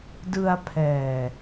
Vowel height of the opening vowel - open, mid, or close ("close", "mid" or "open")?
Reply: close